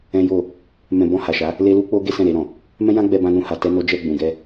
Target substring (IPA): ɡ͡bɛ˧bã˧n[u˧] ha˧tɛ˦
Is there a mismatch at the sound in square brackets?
yes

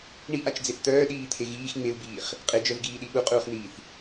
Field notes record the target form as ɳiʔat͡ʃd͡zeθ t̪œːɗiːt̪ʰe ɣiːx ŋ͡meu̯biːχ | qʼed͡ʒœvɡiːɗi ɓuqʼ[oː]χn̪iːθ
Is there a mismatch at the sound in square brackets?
yes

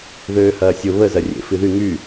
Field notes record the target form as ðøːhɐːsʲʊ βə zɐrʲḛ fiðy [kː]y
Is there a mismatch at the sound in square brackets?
yes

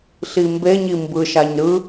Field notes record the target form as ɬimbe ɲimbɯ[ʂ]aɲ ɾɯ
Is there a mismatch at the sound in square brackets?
yes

